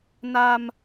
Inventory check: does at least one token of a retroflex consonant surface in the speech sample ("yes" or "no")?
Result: no